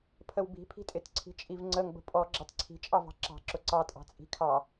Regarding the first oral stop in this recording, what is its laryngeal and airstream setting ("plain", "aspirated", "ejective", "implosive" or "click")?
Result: aspirated